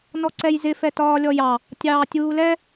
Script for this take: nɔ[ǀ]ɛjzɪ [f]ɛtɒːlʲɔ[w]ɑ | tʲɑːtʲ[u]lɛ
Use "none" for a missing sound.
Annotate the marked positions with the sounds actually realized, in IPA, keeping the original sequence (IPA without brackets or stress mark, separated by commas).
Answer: ǀ, f, j, uː